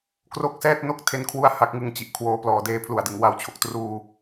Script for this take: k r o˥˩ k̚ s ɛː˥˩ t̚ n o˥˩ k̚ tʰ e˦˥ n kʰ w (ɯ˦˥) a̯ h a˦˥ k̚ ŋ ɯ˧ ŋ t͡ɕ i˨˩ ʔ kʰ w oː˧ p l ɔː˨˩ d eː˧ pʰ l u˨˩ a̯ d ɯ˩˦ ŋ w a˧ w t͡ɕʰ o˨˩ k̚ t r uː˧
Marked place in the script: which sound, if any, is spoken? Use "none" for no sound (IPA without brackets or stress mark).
u˦˥